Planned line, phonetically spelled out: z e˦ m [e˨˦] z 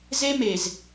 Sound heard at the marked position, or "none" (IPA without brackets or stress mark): e˨